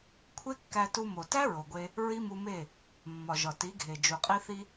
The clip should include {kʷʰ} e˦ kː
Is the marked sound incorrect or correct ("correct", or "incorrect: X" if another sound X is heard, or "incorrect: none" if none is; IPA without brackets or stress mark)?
correct